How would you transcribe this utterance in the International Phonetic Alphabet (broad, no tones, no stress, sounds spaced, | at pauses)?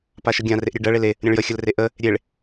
p a ʃ ə ɡʲ ã r e ʔ ɾʲ e ɖ ɜ ɭ e l e | ɾʲ ə̃ ɭ j ə xʲ ə l r e ʔ ə | ɾʲ e ɭ